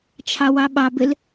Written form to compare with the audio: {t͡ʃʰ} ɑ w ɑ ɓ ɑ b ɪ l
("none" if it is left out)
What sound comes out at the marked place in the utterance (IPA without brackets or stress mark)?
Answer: t͡ʃʰ